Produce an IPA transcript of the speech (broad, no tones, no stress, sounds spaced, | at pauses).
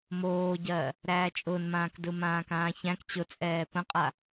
m oː ɟ ɜː | ɾ æː t͡ʃʼ ʊ n m ãː k d ɯ m ãː k ãː ç æ̃ k t͡ɕ ʊ t͡sʼ ɛː p ə̃ qʼ a